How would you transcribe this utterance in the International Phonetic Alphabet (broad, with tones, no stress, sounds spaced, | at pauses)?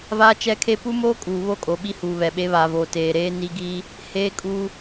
v aː˦ t͡ʃ ɛ˦ kʰ e˦ p u˦ m oː˦ kʼ uː˨ β o˦ kʼ o˨ ɓ i˦ h uː˨ β ɛ˨ ɓ e˦ β a˨ v oː˨ t eː˨ ɾ eː˦ n i˦ ɡ iː˦ | h eː˦ kʼ uː˦